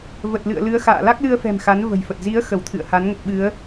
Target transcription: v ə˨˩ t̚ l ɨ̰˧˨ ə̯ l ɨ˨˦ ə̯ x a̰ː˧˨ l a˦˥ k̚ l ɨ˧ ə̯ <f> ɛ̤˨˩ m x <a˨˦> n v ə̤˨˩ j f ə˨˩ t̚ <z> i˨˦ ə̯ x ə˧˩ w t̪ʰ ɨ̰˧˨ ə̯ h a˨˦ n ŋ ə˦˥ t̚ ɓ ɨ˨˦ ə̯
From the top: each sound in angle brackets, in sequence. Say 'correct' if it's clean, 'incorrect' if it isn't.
correct, correct, correct

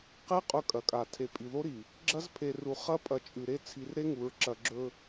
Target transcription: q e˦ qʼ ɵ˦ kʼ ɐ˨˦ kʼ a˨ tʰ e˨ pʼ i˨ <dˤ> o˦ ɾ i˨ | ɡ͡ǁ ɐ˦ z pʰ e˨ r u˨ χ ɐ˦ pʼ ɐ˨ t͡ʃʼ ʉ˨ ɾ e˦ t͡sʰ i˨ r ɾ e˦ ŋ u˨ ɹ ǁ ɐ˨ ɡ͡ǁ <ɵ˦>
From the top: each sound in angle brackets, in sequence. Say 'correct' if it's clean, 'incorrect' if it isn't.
incorrect, correct

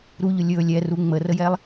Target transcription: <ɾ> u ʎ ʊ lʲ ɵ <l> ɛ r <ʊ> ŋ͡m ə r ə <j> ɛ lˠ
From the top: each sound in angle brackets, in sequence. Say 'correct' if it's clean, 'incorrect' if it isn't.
correct, incorrect, incorrect, correct

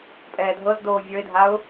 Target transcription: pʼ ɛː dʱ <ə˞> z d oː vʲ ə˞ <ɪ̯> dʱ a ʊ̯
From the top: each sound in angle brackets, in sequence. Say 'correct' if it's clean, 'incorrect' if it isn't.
incorrect, correct

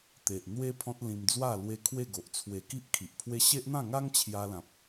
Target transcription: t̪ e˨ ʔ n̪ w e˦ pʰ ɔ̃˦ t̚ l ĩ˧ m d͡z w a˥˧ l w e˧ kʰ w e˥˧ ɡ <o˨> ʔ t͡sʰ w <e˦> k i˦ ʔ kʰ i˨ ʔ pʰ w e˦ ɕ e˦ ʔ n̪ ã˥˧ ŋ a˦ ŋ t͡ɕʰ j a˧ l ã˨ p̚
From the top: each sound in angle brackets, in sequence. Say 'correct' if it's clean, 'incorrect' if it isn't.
correct, incorrect

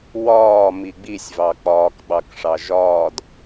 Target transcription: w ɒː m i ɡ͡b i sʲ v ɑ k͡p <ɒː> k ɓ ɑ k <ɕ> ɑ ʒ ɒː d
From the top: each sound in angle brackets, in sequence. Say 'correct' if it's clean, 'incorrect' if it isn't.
correct, incorrect

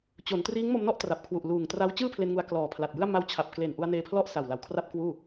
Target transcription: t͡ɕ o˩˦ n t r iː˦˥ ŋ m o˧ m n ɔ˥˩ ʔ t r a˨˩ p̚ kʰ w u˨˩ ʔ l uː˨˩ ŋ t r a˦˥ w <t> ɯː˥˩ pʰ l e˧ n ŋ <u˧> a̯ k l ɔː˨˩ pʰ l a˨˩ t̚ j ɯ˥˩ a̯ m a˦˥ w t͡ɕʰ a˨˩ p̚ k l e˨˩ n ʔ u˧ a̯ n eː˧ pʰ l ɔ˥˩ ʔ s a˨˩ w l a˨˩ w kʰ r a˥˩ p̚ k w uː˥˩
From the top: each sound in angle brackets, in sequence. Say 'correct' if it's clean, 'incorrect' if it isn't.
incorrect, correct

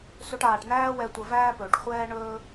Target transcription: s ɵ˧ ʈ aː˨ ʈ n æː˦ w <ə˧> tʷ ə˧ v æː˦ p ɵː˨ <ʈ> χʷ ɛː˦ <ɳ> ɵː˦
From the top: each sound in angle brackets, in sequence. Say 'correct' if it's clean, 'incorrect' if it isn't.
incorrect, correct, correct

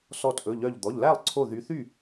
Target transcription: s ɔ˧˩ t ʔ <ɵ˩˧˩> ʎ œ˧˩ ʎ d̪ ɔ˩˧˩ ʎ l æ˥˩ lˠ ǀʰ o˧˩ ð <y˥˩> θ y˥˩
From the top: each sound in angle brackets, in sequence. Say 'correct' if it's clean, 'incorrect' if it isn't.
correct, incorrect

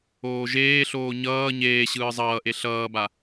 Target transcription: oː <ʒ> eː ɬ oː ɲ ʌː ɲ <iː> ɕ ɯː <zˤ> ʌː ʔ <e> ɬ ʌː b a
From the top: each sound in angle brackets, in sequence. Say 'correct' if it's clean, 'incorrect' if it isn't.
correct, incorrect, correct, correct

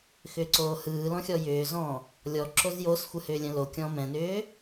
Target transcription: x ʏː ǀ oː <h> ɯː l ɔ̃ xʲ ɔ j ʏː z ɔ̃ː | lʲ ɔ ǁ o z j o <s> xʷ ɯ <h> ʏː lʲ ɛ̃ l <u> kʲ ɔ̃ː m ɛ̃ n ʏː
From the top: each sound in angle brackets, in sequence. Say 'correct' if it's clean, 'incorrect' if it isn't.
correct, correct, correct, incorrect

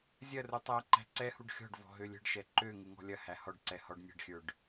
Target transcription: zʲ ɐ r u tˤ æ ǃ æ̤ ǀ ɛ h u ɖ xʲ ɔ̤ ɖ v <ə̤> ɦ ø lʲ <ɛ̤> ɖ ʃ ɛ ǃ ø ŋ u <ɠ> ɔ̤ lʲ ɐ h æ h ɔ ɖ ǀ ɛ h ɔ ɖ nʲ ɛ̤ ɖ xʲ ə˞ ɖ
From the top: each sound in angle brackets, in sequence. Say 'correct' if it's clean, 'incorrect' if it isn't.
incorrect, incorrect, incorrect

